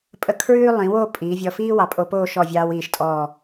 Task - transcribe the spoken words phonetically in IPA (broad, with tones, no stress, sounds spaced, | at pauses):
pʼ ə˧ kʰ ɹ ʉː˥ lˠ ĩ˩˧ w o˥˧ pʼ iː˩˧ vʲ ɔ˧ f iː˥ w ɑ˩˧ pʼ o˧ p oː˥˧ ʃ ɔ˧˩ vʲ ɑː˧ w iː˧˩ ʃ tʼ ɔː˧˩